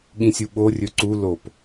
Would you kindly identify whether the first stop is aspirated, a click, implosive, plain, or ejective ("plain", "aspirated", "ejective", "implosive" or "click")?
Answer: implosive